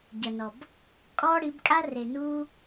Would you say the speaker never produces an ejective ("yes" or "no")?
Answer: no